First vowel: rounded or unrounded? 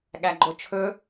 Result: unrounded